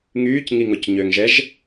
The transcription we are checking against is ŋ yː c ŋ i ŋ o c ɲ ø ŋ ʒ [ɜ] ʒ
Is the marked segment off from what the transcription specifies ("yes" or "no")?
yes